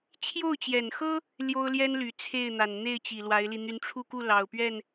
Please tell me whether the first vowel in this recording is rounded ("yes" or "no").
yes